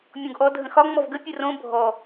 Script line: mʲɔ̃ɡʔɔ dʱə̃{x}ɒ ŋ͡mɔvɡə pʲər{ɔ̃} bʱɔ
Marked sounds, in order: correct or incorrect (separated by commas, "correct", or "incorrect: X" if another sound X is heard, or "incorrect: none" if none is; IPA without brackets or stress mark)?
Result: correct, incorrect: õ